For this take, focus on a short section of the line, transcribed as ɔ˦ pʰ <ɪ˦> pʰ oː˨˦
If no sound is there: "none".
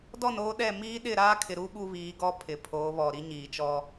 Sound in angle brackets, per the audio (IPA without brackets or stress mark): ɪ˨